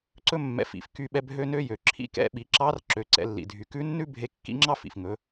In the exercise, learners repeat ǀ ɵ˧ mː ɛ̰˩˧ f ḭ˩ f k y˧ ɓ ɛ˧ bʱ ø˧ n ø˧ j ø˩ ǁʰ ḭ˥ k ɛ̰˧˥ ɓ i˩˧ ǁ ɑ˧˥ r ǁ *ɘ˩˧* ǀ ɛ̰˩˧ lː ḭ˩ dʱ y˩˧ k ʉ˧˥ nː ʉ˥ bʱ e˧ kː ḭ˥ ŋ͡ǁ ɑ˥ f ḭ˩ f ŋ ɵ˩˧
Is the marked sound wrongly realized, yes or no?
yes